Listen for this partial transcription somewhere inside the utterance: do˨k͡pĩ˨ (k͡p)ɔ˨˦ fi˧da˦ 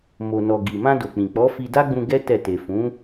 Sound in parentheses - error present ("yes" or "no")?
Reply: no